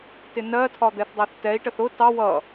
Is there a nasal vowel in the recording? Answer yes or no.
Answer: no